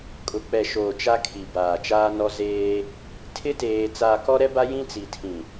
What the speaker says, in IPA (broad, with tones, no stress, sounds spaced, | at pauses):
kʼ ʊ˨ k͡p ɛ˨ ʃ oː˨ t͡ʃ a˦ kʰ i˨ b aː˨ t͡ʃ aː˦ n ɔ˦ z eː˦ | tʰ ɪ˦ t eː˨ t͡s aː˨ k ɔ˦ ɾ ɛ˦ b a˦ j ĩ˦ t͡s i˨ tʰ ĩ˨